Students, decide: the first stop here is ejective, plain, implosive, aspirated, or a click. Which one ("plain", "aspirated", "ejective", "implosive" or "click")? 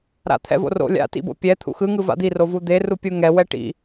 aspirated